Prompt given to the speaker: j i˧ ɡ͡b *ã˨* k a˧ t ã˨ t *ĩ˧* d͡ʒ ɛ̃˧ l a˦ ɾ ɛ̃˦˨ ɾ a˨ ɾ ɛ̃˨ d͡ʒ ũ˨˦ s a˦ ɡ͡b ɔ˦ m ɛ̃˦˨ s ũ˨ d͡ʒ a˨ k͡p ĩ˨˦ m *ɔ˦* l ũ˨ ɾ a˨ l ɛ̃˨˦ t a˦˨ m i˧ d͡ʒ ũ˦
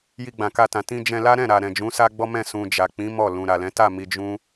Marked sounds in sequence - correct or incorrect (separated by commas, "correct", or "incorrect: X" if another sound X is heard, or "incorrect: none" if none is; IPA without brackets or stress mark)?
correct, correct, incorrect: ɔ˦˨